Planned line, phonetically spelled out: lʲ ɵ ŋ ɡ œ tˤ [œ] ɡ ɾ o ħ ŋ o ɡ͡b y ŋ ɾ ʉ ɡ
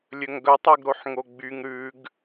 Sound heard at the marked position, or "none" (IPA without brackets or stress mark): œ